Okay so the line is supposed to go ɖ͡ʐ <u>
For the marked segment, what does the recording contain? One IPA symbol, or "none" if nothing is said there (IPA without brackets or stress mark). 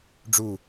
u